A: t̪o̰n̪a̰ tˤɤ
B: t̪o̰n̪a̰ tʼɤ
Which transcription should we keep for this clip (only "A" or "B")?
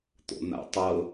A